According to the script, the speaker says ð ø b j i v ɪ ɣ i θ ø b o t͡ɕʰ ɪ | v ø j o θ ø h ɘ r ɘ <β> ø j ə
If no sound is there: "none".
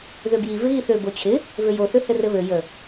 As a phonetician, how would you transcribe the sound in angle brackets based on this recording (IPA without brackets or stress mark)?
β